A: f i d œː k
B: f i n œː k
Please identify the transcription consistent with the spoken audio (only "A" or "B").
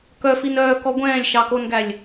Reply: B